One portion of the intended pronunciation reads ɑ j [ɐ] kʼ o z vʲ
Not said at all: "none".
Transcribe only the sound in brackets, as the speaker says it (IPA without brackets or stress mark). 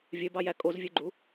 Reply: æ